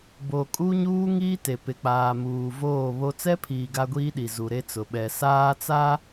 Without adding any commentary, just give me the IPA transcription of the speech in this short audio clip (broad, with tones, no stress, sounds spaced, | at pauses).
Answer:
b o˨ kʼ u˦ ɲ uː˦ ŋ iː˦ t e˨ p ɪ˨ k͡p aː˨ m uː˨ v oː˦˨ β o˦ t͡s ɛ˦ pʰ iː˨ ɡ a˦ ɡʷ iː˦ ɗ i˨ z u˨ ɾ e˦ t͡s ʊ˨ ɓ ɛ˨ s aː˦ t͡s a˦